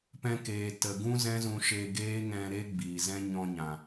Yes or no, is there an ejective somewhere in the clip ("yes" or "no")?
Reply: no